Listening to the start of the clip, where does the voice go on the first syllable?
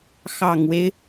low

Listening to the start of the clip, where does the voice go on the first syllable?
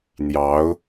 rising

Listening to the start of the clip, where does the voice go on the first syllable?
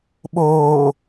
low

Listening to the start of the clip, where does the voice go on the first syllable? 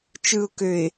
low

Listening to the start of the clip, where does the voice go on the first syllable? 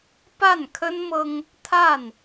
falling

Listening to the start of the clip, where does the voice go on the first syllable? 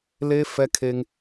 high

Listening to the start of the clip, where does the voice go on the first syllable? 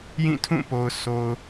falling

